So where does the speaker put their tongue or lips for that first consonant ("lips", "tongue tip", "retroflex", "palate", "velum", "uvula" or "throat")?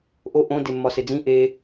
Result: throat